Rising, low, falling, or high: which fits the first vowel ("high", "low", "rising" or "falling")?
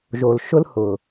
low